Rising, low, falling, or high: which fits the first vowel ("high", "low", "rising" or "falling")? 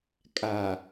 low